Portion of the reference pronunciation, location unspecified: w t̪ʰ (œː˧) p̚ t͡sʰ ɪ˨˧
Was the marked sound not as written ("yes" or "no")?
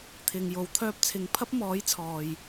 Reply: no